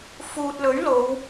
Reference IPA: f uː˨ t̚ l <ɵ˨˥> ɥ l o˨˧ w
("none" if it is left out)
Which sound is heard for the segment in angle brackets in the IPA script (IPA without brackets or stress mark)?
ɵ˨˥